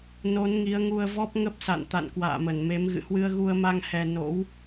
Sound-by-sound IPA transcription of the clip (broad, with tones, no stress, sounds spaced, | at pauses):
n o˨˦ n ŋ i˨˦ ə̯ ŋ u˧ ə̯ v ɔ˦˥ p̚ ŋ ə˦˥ p̚ s a̰˧˨ n t̪ a̰˧˨ n k w a̰ː˧˨ m ə˧˩ n m e˨˦ m ɣ ɨ̰˧˨ h w ɨ˧ ə̯ ɣ u˧ ə̯ m a˧ ŋ h ɛ˧ n o̰˧˥ w